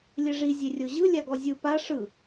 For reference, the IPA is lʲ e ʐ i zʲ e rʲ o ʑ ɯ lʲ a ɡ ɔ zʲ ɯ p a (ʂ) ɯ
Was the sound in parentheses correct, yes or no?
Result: yes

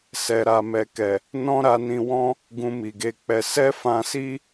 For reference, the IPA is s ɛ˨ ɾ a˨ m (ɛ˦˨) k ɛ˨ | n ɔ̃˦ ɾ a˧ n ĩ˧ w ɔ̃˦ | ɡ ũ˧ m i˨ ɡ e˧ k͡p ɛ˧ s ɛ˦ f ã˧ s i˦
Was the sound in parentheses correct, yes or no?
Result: no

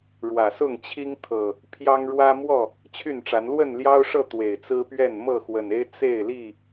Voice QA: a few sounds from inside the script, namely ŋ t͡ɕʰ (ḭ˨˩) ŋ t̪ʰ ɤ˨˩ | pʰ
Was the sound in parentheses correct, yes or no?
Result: no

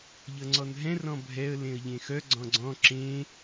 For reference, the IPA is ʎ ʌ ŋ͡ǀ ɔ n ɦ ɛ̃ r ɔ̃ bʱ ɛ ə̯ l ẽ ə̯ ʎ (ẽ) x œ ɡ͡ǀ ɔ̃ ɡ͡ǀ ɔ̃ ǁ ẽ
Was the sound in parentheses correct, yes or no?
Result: yes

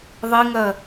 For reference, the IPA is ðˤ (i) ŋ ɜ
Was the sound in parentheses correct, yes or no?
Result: yes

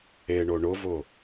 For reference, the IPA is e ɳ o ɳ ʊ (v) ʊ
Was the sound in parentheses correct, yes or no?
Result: yes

